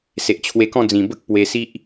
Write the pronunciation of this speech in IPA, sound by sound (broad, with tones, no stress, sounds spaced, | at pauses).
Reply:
s e˨ ʔ t͡ɕʰ w e˧ k ɔ̃˥˧ d͡z ĩ˨˩ b ə˦ k̚ p w e˧ s i˦ ʔ